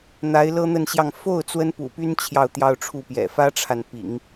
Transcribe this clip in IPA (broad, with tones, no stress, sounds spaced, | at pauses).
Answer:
n̪ a˧˥ ɪ̯ l ɤ˥ n̪ ə˥˧ n ɕ j ɑ˥˧ ŋ f o˥˩ ʊ̯ t͡s w ə˥ n p ṵ˨˩ p y˥ n t͡ɕʰ j ɑ˥˧ ʊ̯ t̪ j ɑ˥˧ ʊ̯ ʈ͡ʂʰ u˥˩ p j ɛ̰˨˩ f ä˥ ʈ͡ʂʰ a˨ n p ḭ˨˩˦ ŋ